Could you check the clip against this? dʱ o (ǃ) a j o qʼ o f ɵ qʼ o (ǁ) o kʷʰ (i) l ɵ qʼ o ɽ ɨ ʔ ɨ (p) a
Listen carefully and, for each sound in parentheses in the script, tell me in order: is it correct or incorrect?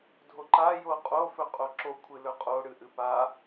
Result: correct, correct, incorrect: ɨ, correct

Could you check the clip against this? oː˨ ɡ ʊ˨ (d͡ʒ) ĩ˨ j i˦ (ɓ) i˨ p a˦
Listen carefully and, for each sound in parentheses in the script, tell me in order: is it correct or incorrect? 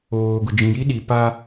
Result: correct, incorrect: ɗ

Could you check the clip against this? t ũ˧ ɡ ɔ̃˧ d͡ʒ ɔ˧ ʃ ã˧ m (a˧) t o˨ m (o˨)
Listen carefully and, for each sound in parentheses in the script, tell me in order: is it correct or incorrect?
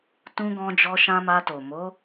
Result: correct, incorrect: o˨˦

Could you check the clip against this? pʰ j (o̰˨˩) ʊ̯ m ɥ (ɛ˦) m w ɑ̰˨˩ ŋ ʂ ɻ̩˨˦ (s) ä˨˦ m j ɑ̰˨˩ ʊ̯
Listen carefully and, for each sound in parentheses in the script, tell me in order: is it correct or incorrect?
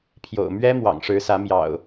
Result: correct, correct, correct

